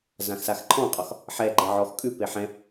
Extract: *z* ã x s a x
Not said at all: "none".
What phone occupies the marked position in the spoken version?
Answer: z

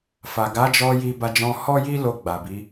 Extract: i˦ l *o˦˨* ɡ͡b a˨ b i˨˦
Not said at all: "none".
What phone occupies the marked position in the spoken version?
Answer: o˧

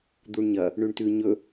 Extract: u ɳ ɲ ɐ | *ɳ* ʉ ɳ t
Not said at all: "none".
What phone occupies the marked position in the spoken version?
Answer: ɳ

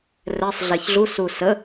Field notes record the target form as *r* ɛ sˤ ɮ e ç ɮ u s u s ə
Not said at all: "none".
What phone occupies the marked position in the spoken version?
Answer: r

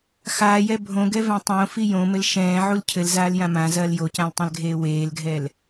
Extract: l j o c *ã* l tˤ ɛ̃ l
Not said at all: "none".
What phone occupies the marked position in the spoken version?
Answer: ã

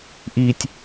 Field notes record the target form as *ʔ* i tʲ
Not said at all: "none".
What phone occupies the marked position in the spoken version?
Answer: ʔ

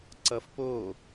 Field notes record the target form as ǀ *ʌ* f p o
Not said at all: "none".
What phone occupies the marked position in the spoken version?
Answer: ʌ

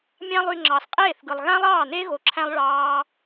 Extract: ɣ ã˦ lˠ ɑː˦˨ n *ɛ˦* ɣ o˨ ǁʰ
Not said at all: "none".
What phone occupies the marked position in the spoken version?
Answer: e˦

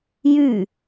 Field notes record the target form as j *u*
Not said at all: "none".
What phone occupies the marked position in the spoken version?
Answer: y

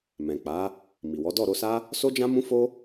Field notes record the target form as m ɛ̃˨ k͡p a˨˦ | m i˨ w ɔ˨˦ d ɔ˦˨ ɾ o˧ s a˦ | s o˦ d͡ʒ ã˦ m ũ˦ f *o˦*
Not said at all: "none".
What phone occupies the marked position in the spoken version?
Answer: o˦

